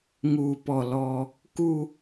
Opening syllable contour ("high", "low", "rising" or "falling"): low